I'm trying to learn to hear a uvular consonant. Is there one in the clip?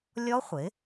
yes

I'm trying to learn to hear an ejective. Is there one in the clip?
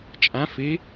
yes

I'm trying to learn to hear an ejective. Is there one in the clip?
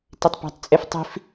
yes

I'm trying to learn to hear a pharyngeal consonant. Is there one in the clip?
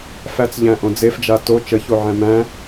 yes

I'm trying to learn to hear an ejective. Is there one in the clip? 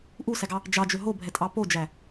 yes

